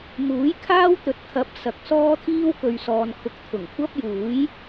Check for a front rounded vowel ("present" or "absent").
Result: absent